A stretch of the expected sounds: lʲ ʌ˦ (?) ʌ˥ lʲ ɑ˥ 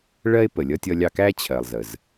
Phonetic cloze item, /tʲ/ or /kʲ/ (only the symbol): tʲ